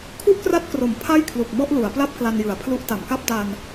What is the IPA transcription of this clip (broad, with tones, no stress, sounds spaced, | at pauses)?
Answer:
kʰ u˥˩ ʔ k r a˦˥ t̚ k r o˩˦ m pʰ a˥˩ j kʰ l u˨˩ k̚ m ɔ˥˩ ʔ l u˩˦ a̯ p l a˥˩ p̚ k l a˧ n j ɯ˩˦ a̯ pʰ l u˦˥ ʔ t a˩˦ m k a˦˥ p̚ d a˧ n